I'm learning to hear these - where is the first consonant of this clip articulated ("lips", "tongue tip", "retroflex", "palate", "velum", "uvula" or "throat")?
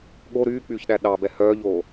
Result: velum